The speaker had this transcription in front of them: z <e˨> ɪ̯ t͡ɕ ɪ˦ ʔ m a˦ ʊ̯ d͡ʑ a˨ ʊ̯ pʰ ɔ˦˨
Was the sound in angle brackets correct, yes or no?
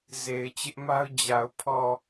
yes